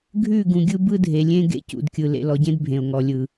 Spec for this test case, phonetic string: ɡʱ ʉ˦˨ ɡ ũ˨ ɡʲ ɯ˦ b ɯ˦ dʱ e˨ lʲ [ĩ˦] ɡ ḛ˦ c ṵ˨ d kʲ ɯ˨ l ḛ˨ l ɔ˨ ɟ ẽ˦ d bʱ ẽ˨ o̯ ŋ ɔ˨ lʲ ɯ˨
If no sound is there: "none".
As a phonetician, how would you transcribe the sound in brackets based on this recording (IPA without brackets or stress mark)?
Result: ẽ˦